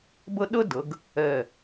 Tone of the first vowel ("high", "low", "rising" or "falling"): high